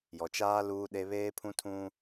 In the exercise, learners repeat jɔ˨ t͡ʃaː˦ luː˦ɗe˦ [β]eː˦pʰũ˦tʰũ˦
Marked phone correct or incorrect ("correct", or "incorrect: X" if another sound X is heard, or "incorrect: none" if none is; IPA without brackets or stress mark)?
correct